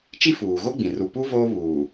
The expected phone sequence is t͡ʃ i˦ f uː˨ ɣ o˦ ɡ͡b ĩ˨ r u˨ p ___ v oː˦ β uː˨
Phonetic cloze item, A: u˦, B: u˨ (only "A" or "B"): A